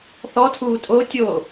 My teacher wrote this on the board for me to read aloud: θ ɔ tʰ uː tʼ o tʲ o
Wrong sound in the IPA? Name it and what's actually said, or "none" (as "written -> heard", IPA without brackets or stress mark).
none